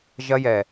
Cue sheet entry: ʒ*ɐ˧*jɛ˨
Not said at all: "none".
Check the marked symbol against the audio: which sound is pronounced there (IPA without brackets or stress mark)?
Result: ɐ˧